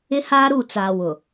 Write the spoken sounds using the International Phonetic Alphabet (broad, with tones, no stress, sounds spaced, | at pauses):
ɪ˦ h aː˦ ɾ u˦˨ t͡s aː˨ w ʊ˨